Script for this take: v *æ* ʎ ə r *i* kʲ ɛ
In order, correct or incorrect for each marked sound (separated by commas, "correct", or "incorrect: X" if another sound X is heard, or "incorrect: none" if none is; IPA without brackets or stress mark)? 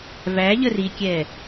correct, correct